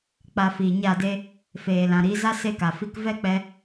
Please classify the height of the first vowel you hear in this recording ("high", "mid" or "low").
low